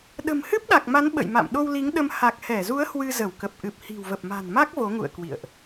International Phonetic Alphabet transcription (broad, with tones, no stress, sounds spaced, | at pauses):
ɗ ə̤˨˩ m h ɨ˦˥ p̚ ɗ a˨˩ k̚ m a˨˦ n ɓ ə̰˧˨ j m a̰˧˨ m ɗ o˧ w l i˨˦ ŋ ɗ ə˧ m h a˨˩ k̚ h ɛ˧˩ z u˨˦ ə̯ h w ɨ˧ z ə˧˩ w k ə˨˩ p̚ ʔ ɨ˨˩ p̚ h i̤˨˩ w v ə˨˩ p̚ m a̤˨˩ n m a˦˥ k̚ v o˨˦ ŋ ṵ˧˨ ə̯ k w ḭ˧˨ ə̯ ʔ